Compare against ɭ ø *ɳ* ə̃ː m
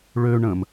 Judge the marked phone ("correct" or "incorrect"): correct